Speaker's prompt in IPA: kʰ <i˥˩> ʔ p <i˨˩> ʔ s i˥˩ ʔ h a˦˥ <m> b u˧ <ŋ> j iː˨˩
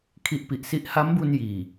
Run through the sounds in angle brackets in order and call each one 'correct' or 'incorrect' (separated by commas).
incorrect, correct, correct, incorrect